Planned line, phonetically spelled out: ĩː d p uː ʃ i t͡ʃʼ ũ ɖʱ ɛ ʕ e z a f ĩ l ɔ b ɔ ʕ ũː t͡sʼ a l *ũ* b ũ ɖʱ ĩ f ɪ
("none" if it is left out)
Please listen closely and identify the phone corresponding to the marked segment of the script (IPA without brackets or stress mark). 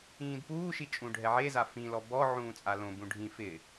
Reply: õ